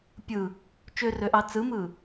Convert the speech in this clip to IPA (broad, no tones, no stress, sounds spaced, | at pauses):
pʲ ɯ | t͡ʃ ø r ø ʔ ɑ t͡s ɯ m ɯ